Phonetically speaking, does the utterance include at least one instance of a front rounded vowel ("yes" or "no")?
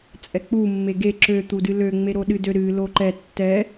yes